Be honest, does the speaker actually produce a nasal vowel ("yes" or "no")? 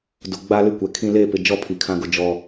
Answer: yes